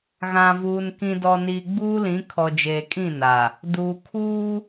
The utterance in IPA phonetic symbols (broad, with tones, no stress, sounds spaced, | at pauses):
ɣ ã˨ v uː˨ n k ĩ˨ d ɔ˨ n iː˨ ɡ͡b uː˦ l ĩ˨˦ kʰ ɔ˨ d͡ʒ eː˨ kʼ ĩ˦˨ n a˨ | d uː˨ kʰ uː˦